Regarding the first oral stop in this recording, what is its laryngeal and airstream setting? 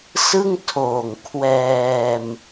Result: aspirated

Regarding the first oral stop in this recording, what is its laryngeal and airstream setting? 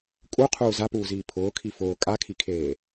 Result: ejective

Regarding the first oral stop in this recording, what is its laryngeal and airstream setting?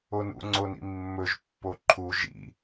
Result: click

